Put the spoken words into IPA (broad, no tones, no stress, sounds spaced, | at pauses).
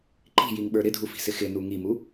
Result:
ǃ i̤ j i ŋ ɓ ə˞ ɾ ɪ dʱ u f i̤ s ɪ x ɪ n u ŋ i m u